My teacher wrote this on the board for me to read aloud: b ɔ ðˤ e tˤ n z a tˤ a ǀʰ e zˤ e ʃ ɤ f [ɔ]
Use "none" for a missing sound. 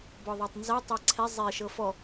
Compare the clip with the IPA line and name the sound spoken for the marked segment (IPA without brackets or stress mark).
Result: ɔ